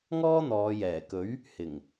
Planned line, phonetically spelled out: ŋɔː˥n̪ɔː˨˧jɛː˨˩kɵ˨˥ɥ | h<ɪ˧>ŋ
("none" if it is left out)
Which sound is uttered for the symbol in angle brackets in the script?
ɪ˨˩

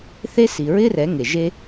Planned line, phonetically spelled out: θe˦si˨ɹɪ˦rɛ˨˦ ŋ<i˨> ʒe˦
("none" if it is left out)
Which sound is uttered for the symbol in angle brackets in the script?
e˨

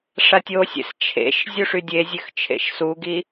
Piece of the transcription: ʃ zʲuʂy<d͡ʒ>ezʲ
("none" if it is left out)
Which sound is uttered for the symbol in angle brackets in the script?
dʲ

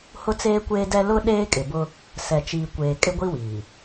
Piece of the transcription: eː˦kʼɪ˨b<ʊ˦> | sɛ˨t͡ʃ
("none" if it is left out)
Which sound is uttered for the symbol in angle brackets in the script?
ʊ˦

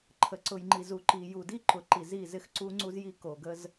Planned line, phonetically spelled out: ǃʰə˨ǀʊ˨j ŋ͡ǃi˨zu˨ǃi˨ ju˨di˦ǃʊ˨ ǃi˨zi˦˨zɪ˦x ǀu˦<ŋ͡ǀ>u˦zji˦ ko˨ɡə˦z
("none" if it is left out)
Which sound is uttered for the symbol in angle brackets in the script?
ŋ͡ǀ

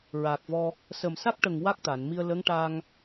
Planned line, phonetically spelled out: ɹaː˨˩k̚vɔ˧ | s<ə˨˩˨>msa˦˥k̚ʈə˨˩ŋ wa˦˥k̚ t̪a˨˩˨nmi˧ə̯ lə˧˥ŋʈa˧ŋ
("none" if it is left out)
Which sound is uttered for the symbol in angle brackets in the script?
ə˨˩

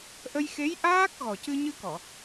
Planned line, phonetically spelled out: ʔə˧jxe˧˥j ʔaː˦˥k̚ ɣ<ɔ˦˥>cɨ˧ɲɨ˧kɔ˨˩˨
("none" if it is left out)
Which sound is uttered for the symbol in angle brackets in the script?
ɔ˨˩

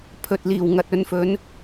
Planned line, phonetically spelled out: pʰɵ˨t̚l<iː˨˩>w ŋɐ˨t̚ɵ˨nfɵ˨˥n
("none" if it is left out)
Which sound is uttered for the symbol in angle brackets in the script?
iː˨˩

